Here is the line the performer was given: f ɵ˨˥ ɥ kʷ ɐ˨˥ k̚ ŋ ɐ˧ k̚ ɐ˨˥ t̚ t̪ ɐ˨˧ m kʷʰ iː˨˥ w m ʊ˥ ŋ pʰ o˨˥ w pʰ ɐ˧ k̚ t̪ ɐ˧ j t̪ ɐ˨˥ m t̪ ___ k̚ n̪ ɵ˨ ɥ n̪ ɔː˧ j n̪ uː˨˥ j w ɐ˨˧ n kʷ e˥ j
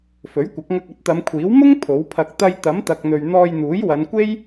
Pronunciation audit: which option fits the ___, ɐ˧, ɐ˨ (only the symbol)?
ɐ˨